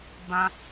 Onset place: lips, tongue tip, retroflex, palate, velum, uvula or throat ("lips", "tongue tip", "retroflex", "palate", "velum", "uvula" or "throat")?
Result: lips